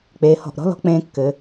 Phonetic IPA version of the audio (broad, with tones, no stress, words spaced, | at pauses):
k͡peː˩˧hɔ̤˧˩ʔɾɔ̤˥ lɔ̤˧ k͡pẽː˧kːɘ˩˧